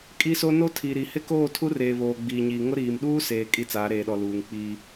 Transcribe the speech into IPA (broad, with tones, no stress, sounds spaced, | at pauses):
kʼ i˦ s o˦ n o˦ tʰ i˨ ɾ i˨ h ɪ˦ k oː˦˨ tʰ u˦ r eː˨ β oː˨ ɡ͡b iː˨ ɲ iː˨ ŋ ʊ˦ ɾ iː˨ m ɗ uː˦ s eː˨ kʼ i˦ t͡s aː˨˦ ɾ eː˨ ɗ ɔ˨ l uː˨ ŋ k͡p iː˦